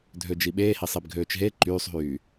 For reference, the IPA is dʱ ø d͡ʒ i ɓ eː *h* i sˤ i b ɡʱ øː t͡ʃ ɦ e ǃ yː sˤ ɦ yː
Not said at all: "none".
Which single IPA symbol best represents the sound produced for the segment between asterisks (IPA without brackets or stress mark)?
h